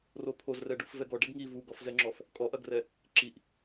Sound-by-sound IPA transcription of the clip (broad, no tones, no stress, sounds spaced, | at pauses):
r o pʰ o z r ɛ ɖ u f v ɛ ɡ ɔ ɖ ɛ ɡ ŋ i v u ɡ ɔ f z ɛ ŋ͡ǁ ɔ f | kʼ ɔ ʔ ɐ ɡ r ɛ | ǁ i ʔ